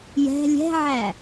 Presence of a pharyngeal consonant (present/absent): present